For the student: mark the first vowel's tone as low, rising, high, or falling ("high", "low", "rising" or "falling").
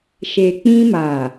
low